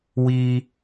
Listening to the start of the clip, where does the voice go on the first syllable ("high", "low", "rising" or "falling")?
high